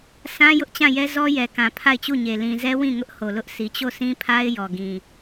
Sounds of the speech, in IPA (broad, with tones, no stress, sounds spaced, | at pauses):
s ã˦ j ʊ˦ ʔ t͡ɕ ã˦˨ j ɛ˦ z ɔ˦ j ɛ˨ k ã˨ pʰ a˦˨ ɪ̯ t͡ɕ u˦˨ ɲ e˨ l ĩ˨ z ɛ˦ w ĩ˦˨ ŋ ʊ˦ ʔ h o˨ l ʊ˦ ʔ s i˨ t͡ɕ o˦˨ s ĩ˦ pʰ a˦ ɪ̯ j ɔ˨ ɡ ĩ˨